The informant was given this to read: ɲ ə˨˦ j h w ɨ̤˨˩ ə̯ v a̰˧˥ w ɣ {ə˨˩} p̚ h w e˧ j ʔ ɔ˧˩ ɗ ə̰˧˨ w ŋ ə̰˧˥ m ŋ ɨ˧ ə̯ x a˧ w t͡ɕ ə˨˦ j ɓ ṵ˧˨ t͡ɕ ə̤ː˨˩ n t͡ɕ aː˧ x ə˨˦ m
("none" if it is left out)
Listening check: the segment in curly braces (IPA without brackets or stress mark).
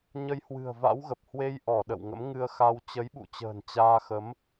ə˨˩